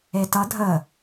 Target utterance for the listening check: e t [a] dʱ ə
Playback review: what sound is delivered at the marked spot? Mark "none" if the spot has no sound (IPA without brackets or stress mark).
ʌ